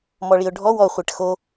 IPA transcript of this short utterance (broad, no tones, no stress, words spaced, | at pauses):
mɔɭiʊ̯ɖʱɔ wɔ χʷɛʈxo